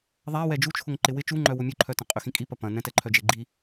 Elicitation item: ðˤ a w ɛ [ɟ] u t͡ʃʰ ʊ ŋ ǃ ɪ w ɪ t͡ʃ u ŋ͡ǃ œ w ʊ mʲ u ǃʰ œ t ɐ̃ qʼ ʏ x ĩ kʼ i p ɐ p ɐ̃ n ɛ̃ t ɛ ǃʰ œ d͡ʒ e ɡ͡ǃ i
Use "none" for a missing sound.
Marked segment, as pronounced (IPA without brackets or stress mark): d͡ʒ